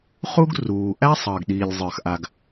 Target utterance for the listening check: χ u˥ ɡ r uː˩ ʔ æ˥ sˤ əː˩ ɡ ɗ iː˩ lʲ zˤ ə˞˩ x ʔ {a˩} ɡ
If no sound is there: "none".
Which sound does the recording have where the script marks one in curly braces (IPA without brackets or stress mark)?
a˩